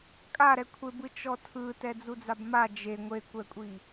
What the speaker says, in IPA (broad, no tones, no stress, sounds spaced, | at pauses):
kʼ a ɾ ɛ kʷʰ e b ɯ t͡ʃ ɔ tʰ ɯ t ɛ d͡z u d͡z a b m a d͡ʒ e ŋʷ e kʷ ɛ kʷʼ i